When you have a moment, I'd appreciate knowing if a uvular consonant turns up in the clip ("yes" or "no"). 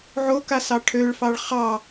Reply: yes